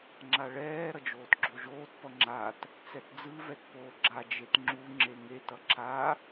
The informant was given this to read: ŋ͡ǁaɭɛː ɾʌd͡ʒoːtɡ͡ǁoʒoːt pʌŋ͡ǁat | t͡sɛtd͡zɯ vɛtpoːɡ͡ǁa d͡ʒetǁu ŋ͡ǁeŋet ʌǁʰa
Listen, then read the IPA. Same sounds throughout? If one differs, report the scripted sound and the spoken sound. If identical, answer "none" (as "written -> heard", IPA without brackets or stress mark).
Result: ǁ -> ŋ͡ǁ